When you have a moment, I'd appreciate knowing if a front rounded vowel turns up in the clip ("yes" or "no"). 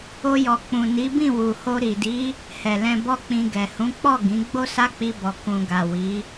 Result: no